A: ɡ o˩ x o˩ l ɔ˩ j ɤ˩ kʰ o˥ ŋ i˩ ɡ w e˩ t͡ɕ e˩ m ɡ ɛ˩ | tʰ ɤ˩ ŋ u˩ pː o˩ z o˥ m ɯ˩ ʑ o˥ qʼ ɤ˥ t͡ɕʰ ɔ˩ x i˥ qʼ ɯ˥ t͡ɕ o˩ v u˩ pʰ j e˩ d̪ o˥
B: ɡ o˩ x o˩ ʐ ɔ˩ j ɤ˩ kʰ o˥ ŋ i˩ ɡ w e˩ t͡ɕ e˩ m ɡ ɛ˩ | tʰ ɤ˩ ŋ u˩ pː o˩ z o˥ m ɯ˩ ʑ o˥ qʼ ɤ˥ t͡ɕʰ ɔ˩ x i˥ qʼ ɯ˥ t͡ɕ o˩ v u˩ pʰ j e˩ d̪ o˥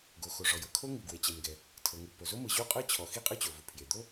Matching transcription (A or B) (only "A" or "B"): B